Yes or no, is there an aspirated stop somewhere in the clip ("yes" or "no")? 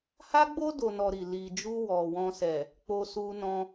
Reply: no